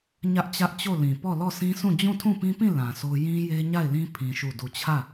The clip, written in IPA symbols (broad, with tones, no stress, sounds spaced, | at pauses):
ɲ ä˦ ʔ t͡ɕ ä˦ ʔ t͡ɕ o˦˨ l ĩ˨ p ɔ˦˨ l ɔ˦˨ sʰ ĩ˦ s ũ˦˨ d͡ʑ ũ˦˨ tʰ ũ˦˨ p ĩ˦ p ĩ˦˨ l ã˨ s o˦ j ĩ˦ j e˦ ɲ a˦˨ ɪ̯ l ĩ˦ pʰ ĩ˦ ʃ u˦˨ d u˦˨ t͡ɕʰ ä˦˨